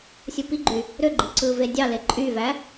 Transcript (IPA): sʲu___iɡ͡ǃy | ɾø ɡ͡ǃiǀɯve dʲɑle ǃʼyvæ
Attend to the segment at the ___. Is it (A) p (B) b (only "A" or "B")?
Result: A